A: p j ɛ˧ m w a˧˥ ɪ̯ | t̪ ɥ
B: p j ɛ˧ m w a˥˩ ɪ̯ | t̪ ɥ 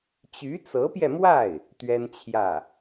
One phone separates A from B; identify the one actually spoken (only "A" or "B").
B